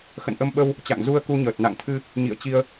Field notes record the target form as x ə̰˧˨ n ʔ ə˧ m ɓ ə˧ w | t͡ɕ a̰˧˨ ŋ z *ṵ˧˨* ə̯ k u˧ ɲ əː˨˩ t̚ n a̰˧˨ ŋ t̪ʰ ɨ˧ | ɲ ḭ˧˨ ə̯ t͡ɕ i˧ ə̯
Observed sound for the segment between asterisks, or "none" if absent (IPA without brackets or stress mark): u˧